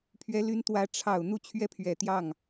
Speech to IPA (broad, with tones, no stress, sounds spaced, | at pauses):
pʰ ɥ ɛ˧˥ l y˧˥ n t̪ w ä˧˥ ʈ͡ʂʰ ɑ˨˩ ʊ̯ n̪ u˥˧ t͡ɕʰ ɥ ɛ˥˩ pʰ ɥ ɛ˨˩ t̪ j ɑ˥˩ ŋ